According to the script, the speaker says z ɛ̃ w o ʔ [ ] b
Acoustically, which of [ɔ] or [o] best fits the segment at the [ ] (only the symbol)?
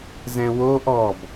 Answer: ɔ